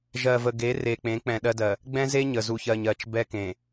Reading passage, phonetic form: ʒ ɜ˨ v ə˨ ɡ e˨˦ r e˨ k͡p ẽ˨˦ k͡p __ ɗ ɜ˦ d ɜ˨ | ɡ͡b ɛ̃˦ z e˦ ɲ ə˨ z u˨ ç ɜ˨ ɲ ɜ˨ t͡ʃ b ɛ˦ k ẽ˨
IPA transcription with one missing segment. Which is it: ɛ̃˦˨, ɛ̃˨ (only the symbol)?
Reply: ɛ̃˨